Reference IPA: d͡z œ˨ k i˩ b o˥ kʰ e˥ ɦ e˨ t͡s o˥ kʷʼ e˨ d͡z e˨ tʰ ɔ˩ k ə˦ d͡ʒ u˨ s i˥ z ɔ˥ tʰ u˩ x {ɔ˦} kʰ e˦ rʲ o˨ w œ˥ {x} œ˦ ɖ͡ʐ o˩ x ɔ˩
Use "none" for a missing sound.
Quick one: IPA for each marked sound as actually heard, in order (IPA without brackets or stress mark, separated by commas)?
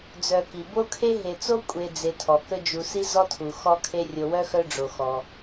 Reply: ɔ˦, x